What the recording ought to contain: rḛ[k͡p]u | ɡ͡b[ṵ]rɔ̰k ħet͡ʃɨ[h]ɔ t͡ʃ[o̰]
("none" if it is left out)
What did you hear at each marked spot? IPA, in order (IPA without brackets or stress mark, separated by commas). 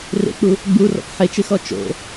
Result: k͡p, u, x, o̰